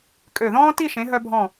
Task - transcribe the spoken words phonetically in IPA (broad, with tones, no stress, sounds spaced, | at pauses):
kʼ ø˧˩ ð ɔ̃ː˥ t i˥˧ ʃ ẽ˩˧ ɦ œ˧ bʱ ɔ̃˧˩